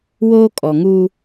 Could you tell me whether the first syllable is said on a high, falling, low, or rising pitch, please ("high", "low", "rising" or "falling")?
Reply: high